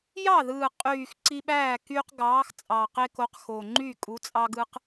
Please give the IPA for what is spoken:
jɑ˥˩ðɯː˨˩qʼyː˨˩x ǀi˦ɓæː˥˩kyː˦q ɡɑː˨˥xt͡sʼɑ˨˩qe˦ko˨˥q xo˨˩ŋ͡ǃy˥˩ kʼu˨˥t͡sʼɑ˦ɡɯ˦q

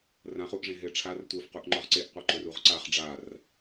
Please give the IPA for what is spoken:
rãχuʔʐẽ ɦeʈ͡ʂʰar tʷə˞fquʔ ŋ͡ǃɒʁǀeʔqʷə˞ ǃɵruʁǀaχ ɖ͡ʐar

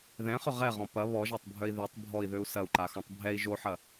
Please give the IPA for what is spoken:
ðɛ̃χʏ ʁɛʁɔ̃ pɐ βɔʒatˤbʱœi̯ ðøtˤ bʱɔi̯ðøu̯ sɐu̯ǃaxɔ̃tˤ bʱɛi̯ ʒoħɐ

